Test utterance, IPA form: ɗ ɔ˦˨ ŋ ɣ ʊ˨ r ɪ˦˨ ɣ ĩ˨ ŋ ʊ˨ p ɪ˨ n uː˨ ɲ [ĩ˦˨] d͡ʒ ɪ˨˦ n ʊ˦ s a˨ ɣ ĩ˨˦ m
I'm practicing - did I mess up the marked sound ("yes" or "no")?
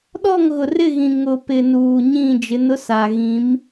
no